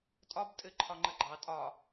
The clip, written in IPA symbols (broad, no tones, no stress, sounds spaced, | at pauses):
tʼ ɒ b tʼ ɘ ǃʰ ɒ ŋ͡ǃ ə ɡ͡ǃ ɑ tʼ ɒ